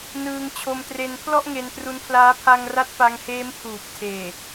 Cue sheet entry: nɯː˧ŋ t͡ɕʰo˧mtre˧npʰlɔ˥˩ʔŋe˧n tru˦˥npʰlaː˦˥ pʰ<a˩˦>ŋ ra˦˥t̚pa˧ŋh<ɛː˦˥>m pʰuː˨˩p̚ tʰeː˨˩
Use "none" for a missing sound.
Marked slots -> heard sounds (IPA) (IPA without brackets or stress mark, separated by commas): a˧, eː˦˥